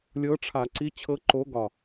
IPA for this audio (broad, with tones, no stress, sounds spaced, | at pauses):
lʲ ɤ˧˥ ʈ͡ʂʰ a˧˩˧ ǀ i˧˥ t͡ɕʰ ɤ˧˥ ǃ o˧˥ ɡ ɒ˧˩